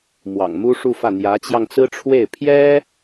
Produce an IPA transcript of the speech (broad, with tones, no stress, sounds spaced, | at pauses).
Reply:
m w ɑ̰˨˩ ŋ m u˥ ʂ u˥˧ f ä˥˩ n̪ j ä˧˥ t͡ɕ j ɑ˧ ŋ t͡s ɹ̩˥ ʈ͡ʂʰ w e˥˩ ɪ̯ pʰ j ɛ˥